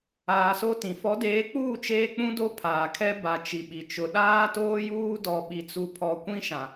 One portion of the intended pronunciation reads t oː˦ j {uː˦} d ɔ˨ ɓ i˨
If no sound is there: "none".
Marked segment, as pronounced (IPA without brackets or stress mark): uː˦